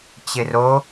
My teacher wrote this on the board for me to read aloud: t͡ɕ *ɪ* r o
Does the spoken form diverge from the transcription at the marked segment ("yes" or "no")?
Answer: no